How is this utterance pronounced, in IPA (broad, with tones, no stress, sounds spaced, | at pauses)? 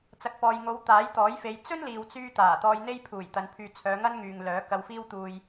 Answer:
t͡s ɐ˨ k̚ p ɔː˨ j ŋ o˨˧ w t̪ aː˨˥ j t̪ ɔː˨˥ j f e˨˧ j t͡s ɵ˥ n l iː˨ w t͡s yː˧ t̪ aː˨˩ t̪ ɔː˧ j n̪ e˥ j pʰ uː˨˩ j t̪ ɐ˨˧ n pʰ yː˧ t͡sʰ œː˨˧ ŋ ɐ˥ n ŋ yː˨ ŋ l œː˨˥ k ɐ˧ w f iː˥ w t̪ uː˧ j